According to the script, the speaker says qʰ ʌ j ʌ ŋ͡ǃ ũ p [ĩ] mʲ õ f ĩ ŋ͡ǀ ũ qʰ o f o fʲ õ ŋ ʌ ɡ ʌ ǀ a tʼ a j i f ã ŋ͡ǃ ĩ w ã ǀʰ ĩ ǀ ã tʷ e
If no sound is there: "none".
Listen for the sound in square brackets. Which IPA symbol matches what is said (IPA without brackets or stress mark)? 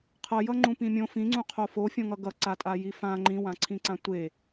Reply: ĩ